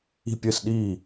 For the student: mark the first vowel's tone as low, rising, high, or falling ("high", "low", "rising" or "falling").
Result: falling